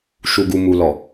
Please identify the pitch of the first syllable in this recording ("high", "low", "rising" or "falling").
low